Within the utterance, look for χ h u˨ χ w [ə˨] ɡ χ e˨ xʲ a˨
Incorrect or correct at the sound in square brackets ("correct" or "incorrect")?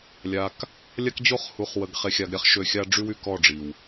correct